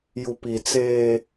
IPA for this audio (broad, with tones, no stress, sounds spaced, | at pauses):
j u˨ p i˨ t͡s eː˦